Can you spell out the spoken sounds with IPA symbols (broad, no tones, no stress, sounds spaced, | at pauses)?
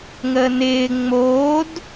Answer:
ŋ əː n ɪː ŋ͡m oː d